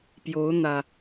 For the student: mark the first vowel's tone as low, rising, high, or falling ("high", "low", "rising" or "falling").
rising